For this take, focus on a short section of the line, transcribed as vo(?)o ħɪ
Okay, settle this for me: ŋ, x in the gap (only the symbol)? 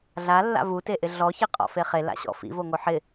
ŋ